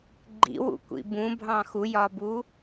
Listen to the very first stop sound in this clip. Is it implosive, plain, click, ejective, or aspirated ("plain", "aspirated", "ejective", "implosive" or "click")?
click